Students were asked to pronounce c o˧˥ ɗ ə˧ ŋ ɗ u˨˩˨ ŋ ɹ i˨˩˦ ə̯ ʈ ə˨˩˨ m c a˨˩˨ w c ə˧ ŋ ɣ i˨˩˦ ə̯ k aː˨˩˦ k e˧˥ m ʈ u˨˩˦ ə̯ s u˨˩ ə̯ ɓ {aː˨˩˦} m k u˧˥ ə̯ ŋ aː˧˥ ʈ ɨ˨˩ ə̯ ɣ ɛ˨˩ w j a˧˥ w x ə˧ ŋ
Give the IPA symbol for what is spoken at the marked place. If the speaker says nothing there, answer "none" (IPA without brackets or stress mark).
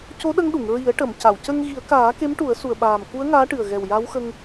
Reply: aː˨˩